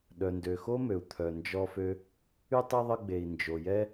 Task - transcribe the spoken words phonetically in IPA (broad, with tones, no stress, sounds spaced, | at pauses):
ɗ œ˩ n d ø˩ x o˥ m ø˩ u̯ t̪ʰ œ˩ n d͡ʒ ɔ˧ f ø˧ | y˥ tˤ ɛ˥ ðˤ ə˧ ɡ͡b e˩ i̯ n d͡ʒ o˩ j ɛ˥